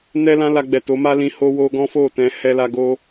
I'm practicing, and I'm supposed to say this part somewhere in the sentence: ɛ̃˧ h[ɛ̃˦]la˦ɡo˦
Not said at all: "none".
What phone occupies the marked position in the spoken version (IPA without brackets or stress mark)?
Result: ɛ˦